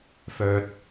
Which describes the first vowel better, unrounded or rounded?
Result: rounded